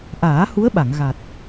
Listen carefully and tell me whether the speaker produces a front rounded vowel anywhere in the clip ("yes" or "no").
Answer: no